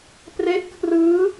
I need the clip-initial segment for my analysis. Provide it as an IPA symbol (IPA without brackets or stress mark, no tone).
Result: p